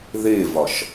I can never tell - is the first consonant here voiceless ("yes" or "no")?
no